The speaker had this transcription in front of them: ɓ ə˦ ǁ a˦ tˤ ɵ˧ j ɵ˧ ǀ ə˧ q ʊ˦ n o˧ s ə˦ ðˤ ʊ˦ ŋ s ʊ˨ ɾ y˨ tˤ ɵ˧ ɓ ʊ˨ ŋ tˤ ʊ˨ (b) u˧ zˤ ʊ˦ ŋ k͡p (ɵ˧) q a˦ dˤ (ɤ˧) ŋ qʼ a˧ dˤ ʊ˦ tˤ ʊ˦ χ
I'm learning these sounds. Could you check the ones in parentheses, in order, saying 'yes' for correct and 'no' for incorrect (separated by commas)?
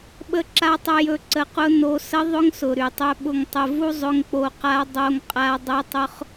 no, no, no